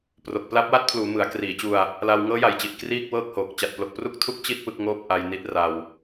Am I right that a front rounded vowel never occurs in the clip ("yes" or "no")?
yes